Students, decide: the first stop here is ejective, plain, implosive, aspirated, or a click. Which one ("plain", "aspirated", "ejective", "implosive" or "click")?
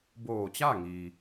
plain